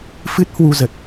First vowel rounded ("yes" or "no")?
no